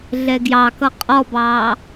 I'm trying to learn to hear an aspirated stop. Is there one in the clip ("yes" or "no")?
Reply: no